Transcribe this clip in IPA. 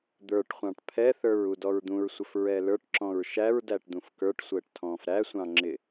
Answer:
d̪ ə˞ ʈ χʷ ɑ̃ ʈ pʰ ɛ θ ə˞ ɹ u d ɔ ɹ d̪ ũ ɹ sʷ ə f ɹ ɛ l ə˞ ʈ ǁ ɔ̃ ɹ ʃ æ ɹ d æ ʈ d̪ ũ f k ə˞ ʈ sʷ əː ʈ tʰ ɔ̃ː f ɾ æ sʷ ɑ̃ ŋ͡ǁ ɪ

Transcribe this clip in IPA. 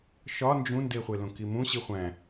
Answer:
ʃ ɒ n d͡ʒ ũ n d e χʷ e l õ k i m ũ ɕ i χʷ æ̃

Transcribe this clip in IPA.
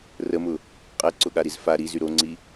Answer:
r ə m ʊ | qʼ ɛ ǀ ʊ ɠ a ɾ i z f a ɾ i z y ɾ o ŋ͡ǀ i

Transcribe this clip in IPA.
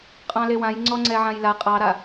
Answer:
qʼ ɑ̃ l e w ã j ŋ͡ǀ ɔ ŋ͡ǀ ɛ ʕ ã j l a qʼ ɑ ɾ a

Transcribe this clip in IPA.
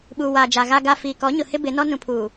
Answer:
ɓ uː˨ w aː˨ d͡ʒ a˨ ɣ a˨ ɡ a˨ f iː˨ k ɔ˨˦ ɲ ʊ˨ h ɪ˦ b ɪ˨˦ n ɔ˦ n ũ˨ pʰ uː˨

